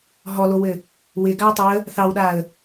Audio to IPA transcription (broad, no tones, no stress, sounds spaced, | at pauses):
ɦ ɔ l o w ɘ | w ɪ ɡ a ə̯ tˤ ɪ ə̯ | θ ɑ w ɗ a ə̯